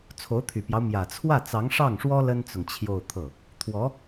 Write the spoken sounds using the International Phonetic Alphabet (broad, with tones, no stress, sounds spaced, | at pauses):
t͡sʰ o˧˥ ʊ̯ t̪ʰ y˨˩ p j ɑ˦ ʊ̯ m j ä˨˩ t͡sʰ w ä˥˩ t͡s ɑ˧˥ ŋ ʂ ɑ˥˩ ŋ ʂ w ɔ˥ l ə˥ n t͡s ʊ˨ ŋ t͡ɕʰ j o˥˧ ʊ̯ t̪ʰ ɤ˥˩ | t̪ʰ w ɔ˧˥